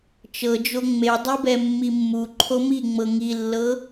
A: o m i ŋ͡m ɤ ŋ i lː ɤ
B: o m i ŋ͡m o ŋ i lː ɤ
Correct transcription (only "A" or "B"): A